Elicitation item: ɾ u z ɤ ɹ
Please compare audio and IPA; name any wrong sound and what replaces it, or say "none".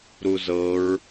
none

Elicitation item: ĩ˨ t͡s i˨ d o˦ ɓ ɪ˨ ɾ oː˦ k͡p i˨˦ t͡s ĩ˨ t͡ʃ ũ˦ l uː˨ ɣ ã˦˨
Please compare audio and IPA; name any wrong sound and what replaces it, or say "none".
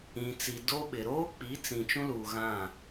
none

